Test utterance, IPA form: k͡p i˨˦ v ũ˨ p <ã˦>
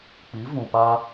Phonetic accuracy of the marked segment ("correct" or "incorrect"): incorrect